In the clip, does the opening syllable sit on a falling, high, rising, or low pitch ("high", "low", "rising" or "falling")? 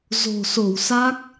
low